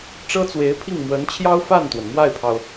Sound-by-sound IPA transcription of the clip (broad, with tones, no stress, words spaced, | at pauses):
ʈ͡ʂɤ˥t͡swe˧˥ɪ̯pʰi˥˩ŋ mwə˧˥nt͡ɕʰjɑ˥ʊ̯fa˥˩nt̪wə˩n mwa˥˩ɪ̯pʰɑ˩ʊ̯